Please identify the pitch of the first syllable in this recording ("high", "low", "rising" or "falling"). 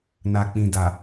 low